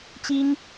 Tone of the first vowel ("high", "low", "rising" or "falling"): high